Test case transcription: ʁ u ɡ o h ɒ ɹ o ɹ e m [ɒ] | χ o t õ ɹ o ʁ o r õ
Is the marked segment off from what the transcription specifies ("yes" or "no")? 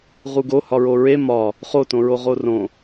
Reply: no